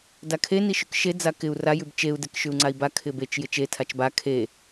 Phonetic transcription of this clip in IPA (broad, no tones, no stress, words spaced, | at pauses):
dakʰe niʃʉkʃe d͡zakɪu̯ ra jʉbt͡ʃeu̯ dekʃʉu̯ŋ͡ǀai̯ba kʰɪbet͡ʃ jɪt͡ʃe tʰat͡ʃba kʰe